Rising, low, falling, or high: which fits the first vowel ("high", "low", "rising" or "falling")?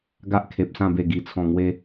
high